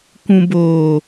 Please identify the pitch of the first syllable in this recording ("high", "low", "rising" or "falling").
low